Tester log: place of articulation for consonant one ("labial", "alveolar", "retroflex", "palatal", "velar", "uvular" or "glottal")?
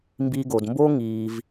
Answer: labial